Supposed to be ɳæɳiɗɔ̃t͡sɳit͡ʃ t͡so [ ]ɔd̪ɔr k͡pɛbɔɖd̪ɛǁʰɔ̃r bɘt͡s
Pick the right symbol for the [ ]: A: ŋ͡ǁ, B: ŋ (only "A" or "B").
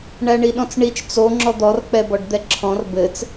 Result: A